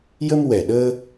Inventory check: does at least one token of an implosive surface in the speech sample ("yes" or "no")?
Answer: yes